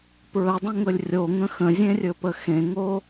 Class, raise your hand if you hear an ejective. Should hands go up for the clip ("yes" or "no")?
no